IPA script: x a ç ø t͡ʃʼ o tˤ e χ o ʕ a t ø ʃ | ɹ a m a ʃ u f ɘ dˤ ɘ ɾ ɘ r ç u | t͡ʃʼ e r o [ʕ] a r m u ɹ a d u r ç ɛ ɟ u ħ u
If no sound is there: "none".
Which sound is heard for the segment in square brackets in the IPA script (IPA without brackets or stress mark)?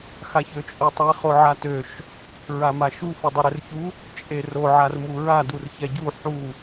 ʕ